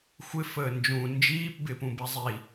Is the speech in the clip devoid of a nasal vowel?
no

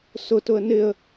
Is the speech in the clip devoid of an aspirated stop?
yes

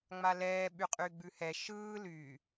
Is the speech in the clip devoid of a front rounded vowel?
no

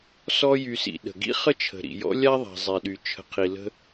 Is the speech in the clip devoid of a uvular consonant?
no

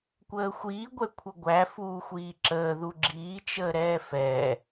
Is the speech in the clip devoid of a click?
no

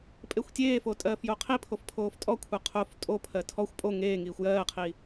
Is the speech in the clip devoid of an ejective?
no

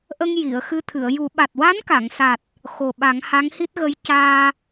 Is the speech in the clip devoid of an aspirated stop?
no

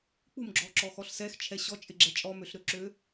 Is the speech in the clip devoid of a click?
no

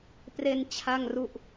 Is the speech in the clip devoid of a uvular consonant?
yes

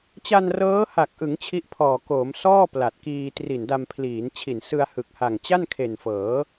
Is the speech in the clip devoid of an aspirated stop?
no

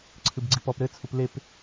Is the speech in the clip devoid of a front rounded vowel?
yes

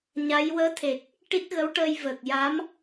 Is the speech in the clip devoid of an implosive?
yes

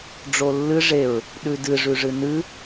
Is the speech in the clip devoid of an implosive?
no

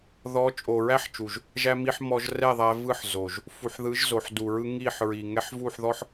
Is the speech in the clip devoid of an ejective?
no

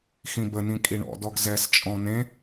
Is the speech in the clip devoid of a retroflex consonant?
no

